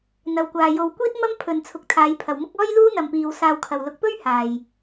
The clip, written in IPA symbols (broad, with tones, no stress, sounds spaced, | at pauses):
n̪ ɐ˨ w kʷ aː˨ j o˧ w kʷ iː˥ t̚ m ɐ˥ m pʰ ɵ˨ n t͡sʰ ʊ˨˥ k̚ t̪ʰ aː˨˧ j pʰ ɐ˨ w m ʊ˥ k̚ ɔː˥ j l uː˥ n̪ ɐ˨ m p iː˨ w s aː˧ w kʰ ɐ˨ w l ʊ˨˥ k̚ p ɵ˥ ɥ h aː˨ j